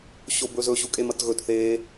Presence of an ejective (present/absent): present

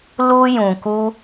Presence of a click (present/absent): absent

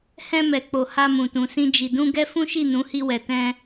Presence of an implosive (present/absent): absent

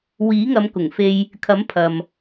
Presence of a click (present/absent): absent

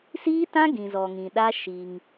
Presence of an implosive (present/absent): present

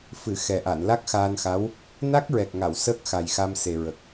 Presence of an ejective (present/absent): absent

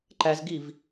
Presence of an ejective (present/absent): absent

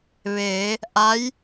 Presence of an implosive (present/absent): absent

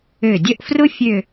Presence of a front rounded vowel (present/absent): present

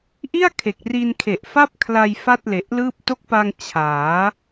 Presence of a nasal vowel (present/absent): absent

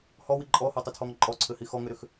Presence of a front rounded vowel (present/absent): present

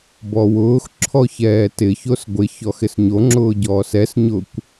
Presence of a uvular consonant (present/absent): absent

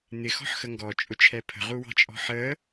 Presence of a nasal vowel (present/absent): absent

